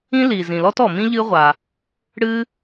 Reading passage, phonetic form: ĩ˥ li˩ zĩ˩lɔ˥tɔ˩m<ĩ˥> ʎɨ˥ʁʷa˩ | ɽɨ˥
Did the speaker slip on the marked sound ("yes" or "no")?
no